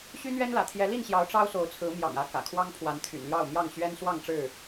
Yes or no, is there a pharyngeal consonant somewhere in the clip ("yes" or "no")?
no